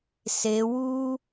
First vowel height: mid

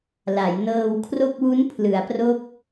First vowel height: low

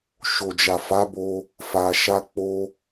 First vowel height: mid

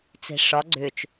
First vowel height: high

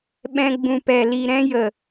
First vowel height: mid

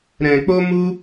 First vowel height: mid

